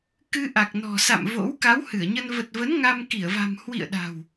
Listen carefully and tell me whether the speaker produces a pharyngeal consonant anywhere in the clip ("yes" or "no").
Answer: no